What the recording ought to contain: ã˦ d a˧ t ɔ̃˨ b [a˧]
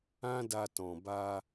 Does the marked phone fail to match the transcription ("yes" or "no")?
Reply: no